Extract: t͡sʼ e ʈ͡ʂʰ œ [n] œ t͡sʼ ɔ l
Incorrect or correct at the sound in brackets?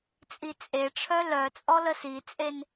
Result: incorrect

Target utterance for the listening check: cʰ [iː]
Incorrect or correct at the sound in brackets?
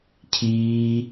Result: correct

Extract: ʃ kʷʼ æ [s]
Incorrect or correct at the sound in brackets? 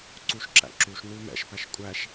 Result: incorrect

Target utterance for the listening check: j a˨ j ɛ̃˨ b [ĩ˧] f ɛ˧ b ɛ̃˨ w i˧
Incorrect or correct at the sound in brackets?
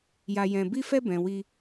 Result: incorrect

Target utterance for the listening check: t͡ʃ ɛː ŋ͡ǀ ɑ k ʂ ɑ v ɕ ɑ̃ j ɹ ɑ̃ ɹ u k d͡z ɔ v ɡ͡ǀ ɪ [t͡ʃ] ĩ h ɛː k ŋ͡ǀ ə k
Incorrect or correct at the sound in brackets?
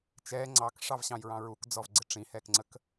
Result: incorrect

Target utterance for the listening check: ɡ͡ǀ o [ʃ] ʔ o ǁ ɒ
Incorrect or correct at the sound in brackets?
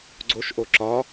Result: correct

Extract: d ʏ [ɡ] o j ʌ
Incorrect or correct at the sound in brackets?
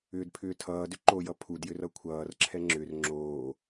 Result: incorrect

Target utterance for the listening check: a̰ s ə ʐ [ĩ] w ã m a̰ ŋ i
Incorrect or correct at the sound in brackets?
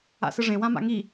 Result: incorrect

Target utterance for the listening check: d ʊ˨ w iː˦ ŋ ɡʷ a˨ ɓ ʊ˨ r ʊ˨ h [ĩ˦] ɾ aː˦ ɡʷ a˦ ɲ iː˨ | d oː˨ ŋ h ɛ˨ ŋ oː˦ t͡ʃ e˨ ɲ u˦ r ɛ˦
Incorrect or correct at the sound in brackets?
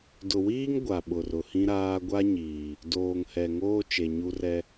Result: correct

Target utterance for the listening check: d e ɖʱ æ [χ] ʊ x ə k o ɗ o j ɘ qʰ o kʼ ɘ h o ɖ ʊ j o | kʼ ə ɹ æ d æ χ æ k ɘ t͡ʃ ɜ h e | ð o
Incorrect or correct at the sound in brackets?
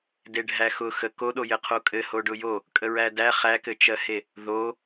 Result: incorrect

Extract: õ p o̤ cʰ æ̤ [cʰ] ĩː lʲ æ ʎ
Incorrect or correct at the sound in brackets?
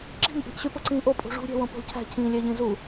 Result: correct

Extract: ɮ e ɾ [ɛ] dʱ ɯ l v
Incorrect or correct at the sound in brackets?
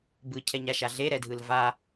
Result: correct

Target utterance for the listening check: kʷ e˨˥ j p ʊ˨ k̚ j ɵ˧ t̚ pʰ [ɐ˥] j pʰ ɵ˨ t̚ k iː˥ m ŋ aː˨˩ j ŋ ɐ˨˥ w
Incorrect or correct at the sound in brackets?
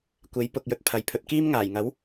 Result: incorrect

